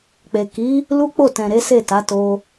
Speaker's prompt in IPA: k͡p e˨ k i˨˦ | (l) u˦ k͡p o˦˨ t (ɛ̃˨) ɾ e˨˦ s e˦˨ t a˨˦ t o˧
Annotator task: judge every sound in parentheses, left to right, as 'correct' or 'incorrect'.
correct, correct

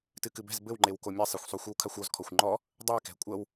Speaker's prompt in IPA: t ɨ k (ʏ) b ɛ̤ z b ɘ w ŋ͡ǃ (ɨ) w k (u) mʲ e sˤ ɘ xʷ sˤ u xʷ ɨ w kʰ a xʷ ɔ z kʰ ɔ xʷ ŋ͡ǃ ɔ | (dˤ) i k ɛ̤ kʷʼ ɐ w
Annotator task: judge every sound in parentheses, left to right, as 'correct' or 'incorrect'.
incorrect: ɨ, incorrect: e, incorrect: o, correct

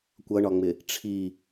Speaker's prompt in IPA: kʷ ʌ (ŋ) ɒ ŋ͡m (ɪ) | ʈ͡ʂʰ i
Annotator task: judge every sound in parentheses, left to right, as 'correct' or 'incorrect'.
incorrect: ɳ, correct

